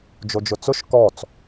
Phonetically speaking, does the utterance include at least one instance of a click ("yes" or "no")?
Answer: no